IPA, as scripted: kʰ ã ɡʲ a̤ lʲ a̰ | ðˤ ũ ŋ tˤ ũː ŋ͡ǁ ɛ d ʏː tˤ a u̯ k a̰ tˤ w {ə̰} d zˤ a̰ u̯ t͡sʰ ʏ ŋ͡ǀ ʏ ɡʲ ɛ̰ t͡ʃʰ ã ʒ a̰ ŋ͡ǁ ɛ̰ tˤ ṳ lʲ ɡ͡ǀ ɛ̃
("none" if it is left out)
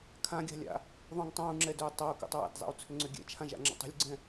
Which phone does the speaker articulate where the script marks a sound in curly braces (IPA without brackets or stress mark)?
a̰